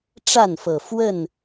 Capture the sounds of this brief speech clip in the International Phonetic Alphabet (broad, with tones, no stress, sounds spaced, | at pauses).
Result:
ʈ͡ʂ a˥˨ n f ɤ˨˩ f w ə˥˨ n